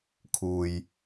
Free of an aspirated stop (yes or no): no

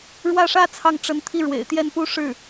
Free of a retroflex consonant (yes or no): no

